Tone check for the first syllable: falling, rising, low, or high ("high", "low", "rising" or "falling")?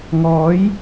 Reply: rising